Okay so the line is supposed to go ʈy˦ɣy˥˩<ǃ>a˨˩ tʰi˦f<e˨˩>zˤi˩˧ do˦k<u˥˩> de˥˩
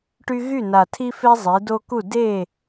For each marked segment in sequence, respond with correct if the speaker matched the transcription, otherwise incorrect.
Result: incorrect: n, incorrect: e˦, correct

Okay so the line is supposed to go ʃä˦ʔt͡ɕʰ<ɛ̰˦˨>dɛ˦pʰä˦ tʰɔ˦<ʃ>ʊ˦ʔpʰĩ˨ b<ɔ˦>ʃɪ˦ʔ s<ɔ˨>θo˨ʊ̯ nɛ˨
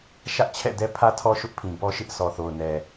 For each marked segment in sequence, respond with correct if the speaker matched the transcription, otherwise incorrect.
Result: correct, correct, correct, correct

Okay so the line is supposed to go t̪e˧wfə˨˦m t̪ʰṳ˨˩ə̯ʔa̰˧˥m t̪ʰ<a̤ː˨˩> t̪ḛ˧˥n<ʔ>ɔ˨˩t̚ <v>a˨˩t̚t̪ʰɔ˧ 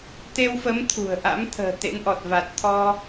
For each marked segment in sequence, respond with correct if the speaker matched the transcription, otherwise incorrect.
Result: incorrect: ə̤ː˨˩, correct, correct

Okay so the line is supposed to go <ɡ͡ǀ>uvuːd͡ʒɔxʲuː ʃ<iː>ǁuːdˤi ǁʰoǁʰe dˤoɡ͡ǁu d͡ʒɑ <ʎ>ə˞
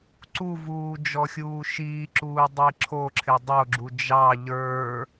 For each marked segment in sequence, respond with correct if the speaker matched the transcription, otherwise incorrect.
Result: incorrect: ǀ, correct, correct

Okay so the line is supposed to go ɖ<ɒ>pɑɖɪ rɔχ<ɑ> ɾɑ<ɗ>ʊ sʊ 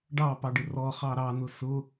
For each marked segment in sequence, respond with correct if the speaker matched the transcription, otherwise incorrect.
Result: incorrect: ɑ, correct, incorrect: n

